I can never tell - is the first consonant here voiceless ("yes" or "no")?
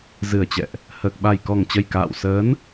no